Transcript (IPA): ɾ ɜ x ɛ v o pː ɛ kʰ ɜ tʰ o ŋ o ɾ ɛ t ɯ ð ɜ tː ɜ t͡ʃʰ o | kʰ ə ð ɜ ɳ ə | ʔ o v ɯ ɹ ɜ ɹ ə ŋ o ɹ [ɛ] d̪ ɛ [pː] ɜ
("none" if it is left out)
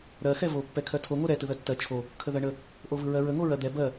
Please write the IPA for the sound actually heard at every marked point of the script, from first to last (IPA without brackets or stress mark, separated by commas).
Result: ɜ, b